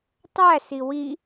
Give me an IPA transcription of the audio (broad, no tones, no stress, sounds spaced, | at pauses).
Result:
tˤ æ s i w i